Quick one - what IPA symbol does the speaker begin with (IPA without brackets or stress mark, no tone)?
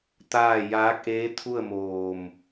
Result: t̪